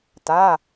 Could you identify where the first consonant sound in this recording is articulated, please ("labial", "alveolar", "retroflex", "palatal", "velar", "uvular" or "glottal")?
alveolar